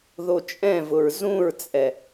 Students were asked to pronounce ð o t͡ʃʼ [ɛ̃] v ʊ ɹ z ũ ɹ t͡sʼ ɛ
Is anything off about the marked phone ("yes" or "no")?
no